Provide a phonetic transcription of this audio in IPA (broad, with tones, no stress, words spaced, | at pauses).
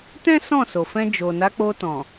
tɛ̃˦ sɔ̃˦˨so˨fɛ̃˧ d͡ʒo˨ na˨˦k͡po˧tɔ̃˨